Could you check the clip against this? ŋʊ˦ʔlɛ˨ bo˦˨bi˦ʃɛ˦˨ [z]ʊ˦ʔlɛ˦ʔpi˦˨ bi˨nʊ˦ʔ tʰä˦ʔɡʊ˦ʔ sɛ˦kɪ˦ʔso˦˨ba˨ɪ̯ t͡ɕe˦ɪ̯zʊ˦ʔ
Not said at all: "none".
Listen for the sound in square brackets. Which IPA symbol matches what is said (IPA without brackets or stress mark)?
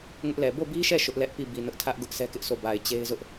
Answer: ʃ